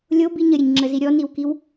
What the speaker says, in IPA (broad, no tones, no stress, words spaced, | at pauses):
lʲobiɲ əɾʲəɲŋ͡ǁəzi ɾʲɔniwkiw